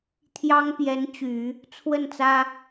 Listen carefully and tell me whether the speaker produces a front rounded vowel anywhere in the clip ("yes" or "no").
yes